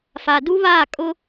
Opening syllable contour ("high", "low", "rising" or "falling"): low